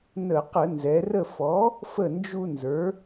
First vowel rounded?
no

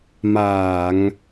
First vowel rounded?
no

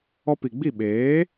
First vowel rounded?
yes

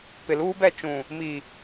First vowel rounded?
no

